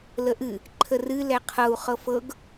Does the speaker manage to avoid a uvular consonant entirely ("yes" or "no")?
no